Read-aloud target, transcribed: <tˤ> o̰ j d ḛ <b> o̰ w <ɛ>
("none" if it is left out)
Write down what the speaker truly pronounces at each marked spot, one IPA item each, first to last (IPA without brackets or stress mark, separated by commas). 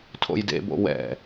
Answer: tʰ, b, ɛ̰